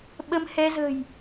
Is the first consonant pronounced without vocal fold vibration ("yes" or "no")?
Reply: no